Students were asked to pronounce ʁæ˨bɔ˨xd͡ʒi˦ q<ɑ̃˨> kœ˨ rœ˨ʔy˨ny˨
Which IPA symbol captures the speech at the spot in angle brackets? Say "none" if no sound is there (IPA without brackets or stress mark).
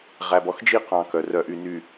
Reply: ɑ̃˨